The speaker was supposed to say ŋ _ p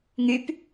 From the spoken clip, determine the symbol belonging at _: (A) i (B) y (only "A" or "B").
B